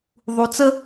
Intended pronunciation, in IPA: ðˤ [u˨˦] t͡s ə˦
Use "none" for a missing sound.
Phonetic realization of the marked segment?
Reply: u˨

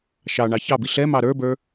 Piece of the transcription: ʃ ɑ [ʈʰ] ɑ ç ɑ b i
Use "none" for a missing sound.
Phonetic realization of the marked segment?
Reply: ɳ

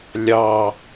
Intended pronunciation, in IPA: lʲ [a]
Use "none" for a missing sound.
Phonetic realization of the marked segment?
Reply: ɑ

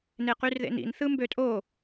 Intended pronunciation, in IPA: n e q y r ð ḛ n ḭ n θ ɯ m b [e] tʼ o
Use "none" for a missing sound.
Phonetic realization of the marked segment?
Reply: ø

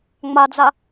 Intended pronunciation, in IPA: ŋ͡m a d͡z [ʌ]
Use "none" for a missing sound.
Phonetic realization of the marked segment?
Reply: a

